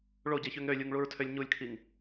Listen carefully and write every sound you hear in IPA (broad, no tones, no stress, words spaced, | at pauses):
ɭoɟeçøŋ ɾølʲuŋɭuɹtʰølʲ ɲulʲkʰiŋ